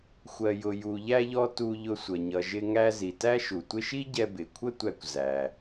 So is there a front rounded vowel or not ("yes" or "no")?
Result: no